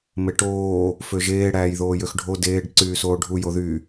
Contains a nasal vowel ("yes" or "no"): no